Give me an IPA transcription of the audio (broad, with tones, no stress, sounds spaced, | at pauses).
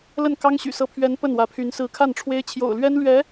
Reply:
l ə˥˩ n k ɑ˥ ŋ ɕ y̰˨˩ s ɤ˧˥ pʰ ɥ ɛ˧˥ n p ə˥˩ n w ä˧˥ pʰ y˧˥ n s ɹ̩˧˥ kʰ a˥˩ n ʈ͡ʂʰ w e˥ ɪ̯ t͡ɕʰ j o̰˨˩ ʊ̯ l ɥ ɛ˥ n l ɥ ɛ˧˥